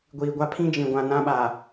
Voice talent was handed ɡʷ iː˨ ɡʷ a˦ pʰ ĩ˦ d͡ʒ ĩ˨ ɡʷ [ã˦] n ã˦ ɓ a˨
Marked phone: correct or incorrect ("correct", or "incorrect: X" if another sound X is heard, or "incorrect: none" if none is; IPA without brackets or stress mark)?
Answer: incorrect: ã˨